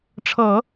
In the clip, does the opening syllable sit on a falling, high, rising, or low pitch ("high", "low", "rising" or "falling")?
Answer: low